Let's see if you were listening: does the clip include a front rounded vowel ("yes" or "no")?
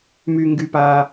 yes